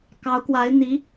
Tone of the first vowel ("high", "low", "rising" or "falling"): rising